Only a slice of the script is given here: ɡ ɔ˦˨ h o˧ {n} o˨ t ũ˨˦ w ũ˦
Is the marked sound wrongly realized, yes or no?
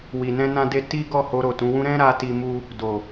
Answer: yes